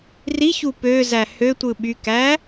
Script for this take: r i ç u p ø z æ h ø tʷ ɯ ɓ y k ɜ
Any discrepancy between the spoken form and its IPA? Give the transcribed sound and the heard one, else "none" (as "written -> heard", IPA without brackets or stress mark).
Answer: ɜ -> æ